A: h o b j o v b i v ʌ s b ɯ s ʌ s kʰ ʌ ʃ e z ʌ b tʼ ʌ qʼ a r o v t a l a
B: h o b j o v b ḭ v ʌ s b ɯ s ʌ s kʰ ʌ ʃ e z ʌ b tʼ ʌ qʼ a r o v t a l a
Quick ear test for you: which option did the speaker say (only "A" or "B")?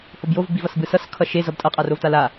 A